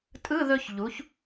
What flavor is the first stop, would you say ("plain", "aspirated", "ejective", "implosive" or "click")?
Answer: ejective